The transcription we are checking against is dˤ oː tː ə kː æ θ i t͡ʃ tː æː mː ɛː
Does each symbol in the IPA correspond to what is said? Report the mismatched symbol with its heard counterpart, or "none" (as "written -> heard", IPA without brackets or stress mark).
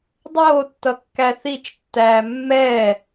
ə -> ʌ